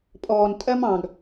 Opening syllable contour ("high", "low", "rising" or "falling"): low